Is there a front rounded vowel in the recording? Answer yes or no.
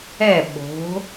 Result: no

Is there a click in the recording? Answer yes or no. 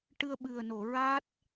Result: no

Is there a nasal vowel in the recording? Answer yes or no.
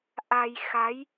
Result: no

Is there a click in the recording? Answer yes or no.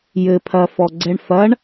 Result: yes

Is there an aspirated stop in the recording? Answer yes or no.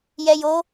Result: no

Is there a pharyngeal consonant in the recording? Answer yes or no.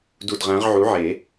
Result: yes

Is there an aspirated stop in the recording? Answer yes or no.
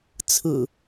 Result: yes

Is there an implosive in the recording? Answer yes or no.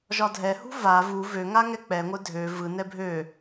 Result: no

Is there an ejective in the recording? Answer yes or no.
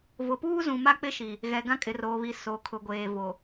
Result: yes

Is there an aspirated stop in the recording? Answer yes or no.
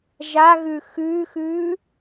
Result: no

